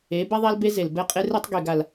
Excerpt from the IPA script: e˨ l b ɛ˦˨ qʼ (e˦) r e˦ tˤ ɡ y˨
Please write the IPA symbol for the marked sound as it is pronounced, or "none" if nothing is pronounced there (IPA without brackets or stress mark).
e˦